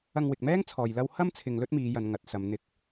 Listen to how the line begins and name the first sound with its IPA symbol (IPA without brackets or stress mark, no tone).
ɐ